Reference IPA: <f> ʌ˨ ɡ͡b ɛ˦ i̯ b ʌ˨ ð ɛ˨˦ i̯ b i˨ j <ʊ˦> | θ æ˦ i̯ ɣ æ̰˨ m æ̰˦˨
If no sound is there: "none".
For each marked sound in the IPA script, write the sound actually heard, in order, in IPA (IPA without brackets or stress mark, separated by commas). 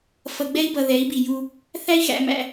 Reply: f, u˦